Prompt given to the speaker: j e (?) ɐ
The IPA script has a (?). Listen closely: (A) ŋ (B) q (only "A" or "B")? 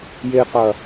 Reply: B